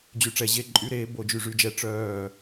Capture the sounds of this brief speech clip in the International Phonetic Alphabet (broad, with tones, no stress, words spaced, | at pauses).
d͡ʑy˧ʈ͡ʂɛ˧ʑe˧˥˧ ǃʼy˦˥ɾeː˦˥ bo˥˧d͡ʒy˧˥˧ʐy˦˥d͡ʒɛ˦˥ ʈ͡ʂœː˥˧